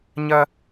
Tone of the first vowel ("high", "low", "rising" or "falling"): high